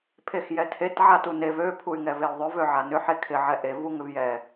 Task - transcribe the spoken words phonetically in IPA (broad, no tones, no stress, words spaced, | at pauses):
pʰexjɛtʰet ʕatunev ø pʰuy̯ŋɛveu̯ðˤʏ vøʕanʏ ħekʰɪ ʕɛʔe vuŋʏvjɛ